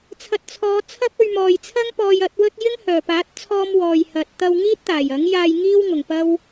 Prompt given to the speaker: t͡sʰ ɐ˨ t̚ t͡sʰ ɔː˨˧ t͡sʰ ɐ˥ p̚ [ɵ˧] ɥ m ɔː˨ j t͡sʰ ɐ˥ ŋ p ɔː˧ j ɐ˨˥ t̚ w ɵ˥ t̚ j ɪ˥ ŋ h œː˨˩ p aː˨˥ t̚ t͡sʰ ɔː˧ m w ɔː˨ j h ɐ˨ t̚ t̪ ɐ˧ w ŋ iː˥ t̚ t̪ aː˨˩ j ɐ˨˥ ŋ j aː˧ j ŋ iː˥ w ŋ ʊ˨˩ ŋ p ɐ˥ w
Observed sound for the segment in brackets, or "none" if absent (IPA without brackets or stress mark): ɵ˧